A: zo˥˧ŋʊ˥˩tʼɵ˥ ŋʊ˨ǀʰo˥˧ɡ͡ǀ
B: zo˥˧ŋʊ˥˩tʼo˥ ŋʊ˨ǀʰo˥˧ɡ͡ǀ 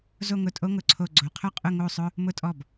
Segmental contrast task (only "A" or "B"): B